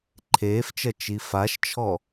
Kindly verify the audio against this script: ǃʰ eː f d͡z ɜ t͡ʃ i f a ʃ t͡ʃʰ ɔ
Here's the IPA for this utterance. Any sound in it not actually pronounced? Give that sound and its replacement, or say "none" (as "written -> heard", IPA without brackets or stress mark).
d͡z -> t͡ʃ